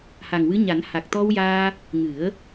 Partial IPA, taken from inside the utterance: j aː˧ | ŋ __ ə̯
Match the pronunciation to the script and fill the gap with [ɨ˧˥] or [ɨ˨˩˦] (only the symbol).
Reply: ɨ˨˩˦